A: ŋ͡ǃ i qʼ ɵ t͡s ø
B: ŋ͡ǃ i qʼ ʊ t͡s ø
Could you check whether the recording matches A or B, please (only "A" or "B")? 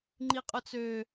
B